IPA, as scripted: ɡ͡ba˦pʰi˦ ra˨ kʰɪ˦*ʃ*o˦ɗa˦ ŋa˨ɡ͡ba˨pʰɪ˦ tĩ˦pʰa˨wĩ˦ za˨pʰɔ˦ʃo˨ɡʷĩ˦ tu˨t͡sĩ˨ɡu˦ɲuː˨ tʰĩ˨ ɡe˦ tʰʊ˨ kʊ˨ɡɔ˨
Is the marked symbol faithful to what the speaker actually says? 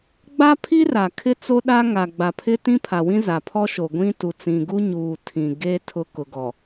no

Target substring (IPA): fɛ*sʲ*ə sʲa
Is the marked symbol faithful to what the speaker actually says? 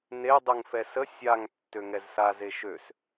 no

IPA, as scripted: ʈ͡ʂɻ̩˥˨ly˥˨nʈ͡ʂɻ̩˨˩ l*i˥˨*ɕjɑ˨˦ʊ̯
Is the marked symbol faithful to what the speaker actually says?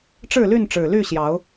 no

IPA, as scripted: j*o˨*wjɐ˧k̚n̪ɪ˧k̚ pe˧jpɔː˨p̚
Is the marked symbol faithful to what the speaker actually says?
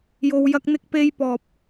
yes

